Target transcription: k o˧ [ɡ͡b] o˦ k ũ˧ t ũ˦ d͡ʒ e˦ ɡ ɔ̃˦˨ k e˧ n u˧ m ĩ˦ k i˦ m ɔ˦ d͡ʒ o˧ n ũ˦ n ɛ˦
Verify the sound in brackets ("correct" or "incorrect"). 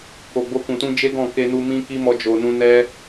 correct